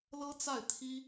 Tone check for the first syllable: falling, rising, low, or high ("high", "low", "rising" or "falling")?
high